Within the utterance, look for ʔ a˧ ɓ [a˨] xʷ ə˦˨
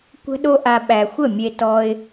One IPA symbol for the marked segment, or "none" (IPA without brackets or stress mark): æ˨